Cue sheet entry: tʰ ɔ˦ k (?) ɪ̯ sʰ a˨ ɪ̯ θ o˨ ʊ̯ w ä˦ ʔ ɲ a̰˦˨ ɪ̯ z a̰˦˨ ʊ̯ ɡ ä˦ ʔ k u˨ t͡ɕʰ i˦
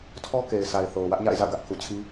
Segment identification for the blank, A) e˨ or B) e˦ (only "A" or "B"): A